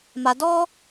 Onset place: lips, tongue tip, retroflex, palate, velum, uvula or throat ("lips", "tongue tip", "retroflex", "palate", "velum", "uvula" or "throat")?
lips